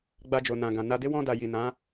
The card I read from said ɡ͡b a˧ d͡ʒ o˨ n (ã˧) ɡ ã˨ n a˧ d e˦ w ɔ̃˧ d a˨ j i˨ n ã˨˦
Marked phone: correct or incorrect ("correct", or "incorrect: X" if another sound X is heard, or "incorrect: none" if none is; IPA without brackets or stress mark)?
incorrect: ã˨